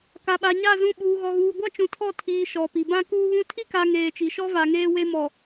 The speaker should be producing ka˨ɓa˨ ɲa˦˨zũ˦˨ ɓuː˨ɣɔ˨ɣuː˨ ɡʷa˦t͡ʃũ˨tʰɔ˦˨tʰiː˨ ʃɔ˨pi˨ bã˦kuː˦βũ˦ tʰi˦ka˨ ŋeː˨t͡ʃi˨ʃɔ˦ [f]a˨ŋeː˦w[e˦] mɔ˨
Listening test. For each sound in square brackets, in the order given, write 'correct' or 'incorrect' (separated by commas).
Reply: incorrect, correct